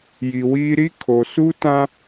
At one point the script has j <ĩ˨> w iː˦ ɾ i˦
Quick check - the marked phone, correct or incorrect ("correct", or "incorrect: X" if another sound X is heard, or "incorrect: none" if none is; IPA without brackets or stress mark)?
incorrect: i˨